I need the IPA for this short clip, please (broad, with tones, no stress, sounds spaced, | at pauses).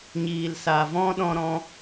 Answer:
ɲ iː˨ l s a˨ v ɔ̃˦ ɗ ɔ̃˧ ɾ ɔ̃˧